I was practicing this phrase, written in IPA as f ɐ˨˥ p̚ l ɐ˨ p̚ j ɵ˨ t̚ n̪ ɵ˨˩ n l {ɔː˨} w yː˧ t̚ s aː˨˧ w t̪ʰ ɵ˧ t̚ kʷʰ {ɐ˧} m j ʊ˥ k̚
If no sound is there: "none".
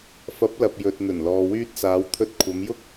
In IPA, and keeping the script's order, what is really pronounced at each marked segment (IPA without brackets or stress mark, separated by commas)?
ɔː˨, ɐ˨˧